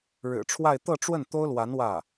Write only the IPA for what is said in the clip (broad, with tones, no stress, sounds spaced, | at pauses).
ɻ ɻ̩˨˩ ʈ͡ʂʰ w a˥˧ ɪ̯ t̪ ɤ˥˧ ʈ͡ʂ w ə˥˩ n t̪ o˥ ʊ̯ l w a˧˥ n w ä˥˩